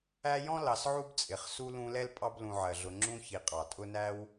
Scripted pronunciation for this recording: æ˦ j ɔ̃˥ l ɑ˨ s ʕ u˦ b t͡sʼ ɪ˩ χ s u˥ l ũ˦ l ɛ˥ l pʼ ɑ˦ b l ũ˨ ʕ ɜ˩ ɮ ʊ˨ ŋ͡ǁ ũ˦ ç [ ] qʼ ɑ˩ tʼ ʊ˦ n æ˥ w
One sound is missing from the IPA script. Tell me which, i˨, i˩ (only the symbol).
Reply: i˨